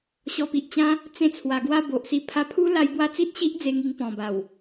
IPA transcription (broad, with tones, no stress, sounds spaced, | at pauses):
ɕ ɔ˧ p i˨ ʔ t͡ɕ ã˦ | t͡s ẽ˥˧ t͡sʰ w a˧ ɡ w a˥˧ b o˨ ʔ s i˧ pʰ a˧ pʰ u˦ l a˧ j b w a˦ t͡s i˦ t̚ ɕ i˦ ʔ d͡z e˧ ŋ i˧ ŋ p ɔ̃˨˩ b a˨˩ w